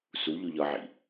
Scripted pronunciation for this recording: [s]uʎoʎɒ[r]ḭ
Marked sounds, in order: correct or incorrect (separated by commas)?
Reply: correct, incorrect